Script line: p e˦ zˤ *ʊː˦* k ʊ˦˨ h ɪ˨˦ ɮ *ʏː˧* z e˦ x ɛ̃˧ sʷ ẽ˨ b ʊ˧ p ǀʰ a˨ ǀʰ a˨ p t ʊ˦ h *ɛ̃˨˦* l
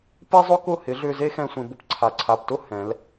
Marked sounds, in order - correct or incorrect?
incorrect: ʊ˦, correct, correct

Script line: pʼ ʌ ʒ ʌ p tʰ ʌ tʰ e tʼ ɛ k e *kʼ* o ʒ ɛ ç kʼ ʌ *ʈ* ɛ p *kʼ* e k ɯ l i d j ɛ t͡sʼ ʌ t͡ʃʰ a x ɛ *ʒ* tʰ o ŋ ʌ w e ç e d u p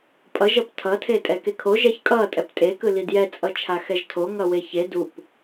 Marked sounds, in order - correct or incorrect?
incorrect: kʰ, incorrect: tʼ, incorrect: tʼ, correct

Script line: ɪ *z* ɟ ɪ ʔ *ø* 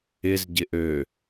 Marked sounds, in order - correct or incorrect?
correct, correct

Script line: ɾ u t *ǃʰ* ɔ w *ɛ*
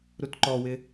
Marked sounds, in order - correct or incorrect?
incorrect: ǃ, incorrect: ɪ

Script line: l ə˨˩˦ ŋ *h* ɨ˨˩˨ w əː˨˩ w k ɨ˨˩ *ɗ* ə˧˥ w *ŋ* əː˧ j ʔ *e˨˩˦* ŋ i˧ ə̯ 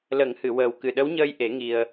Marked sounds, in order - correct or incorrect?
correct, correct, incorrect: ɲ, correct

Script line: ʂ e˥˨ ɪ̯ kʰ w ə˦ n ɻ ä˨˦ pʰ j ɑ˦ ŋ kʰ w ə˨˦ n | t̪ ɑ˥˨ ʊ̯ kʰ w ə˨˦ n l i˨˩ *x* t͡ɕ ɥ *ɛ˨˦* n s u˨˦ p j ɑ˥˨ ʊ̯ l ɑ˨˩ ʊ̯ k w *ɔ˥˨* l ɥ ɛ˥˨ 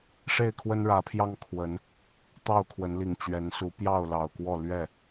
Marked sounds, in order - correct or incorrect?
incorrect: ŋ, correct, correct

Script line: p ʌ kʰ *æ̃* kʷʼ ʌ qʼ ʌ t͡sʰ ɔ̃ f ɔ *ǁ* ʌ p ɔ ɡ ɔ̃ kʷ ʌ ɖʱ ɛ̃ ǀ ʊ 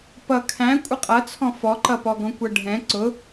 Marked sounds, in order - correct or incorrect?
correct, incorrect: ǃ

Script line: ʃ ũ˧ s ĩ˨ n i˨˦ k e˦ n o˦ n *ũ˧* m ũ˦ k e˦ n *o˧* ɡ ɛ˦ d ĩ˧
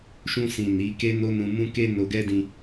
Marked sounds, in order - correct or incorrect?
correct, correct

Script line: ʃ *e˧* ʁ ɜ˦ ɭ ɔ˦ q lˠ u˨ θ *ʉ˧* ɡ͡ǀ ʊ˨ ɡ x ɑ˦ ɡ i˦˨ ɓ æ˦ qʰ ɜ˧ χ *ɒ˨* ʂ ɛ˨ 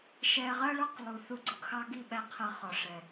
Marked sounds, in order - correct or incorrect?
incorrect: ɛ˧, incorrect: u˧, correct

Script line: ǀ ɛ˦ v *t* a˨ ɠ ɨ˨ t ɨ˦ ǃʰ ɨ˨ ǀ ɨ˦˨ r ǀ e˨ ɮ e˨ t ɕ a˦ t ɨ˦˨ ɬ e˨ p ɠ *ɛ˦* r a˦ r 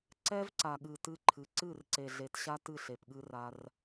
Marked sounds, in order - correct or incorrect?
incorrect: ǀ, incorrect: ɨ˦

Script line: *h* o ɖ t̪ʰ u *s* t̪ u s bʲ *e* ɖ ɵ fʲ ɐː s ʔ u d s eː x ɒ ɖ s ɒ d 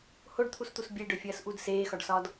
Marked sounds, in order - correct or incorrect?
correct, correct, correct

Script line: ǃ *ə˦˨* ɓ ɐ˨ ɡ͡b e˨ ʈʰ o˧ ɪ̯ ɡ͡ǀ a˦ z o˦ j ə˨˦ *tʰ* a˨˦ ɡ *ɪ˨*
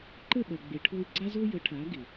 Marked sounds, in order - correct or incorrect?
correct, incorrect: ʈʰ, correct

